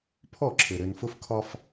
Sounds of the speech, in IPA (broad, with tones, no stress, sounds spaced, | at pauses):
pʰ ɔ˦˨ ǁʰ ɘ˨ ɾ ɘ˨ n f ʊ˦ f kʰ ɒ˦ f